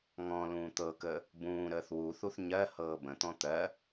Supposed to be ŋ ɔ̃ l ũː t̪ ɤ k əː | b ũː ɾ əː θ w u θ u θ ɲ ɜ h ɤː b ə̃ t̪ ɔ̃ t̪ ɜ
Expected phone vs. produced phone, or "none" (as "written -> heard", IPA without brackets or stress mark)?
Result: none